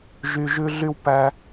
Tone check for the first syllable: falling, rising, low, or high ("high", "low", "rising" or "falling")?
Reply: high